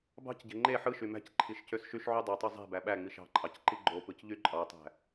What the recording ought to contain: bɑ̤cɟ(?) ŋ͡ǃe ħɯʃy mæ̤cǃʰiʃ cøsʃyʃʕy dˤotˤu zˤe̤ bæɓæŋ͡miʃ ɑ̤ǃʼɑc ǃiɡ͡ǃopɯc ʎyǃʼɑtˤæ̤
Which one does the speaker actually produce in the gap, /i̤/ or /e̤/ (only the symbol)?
e̤